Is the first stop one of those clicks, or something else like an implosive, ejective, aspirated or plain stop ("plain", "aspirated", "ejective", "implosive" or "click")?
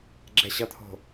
click